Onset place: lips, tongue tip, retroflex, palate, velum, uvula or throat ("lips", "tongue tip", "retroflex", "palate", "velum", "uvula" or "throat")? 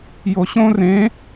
palate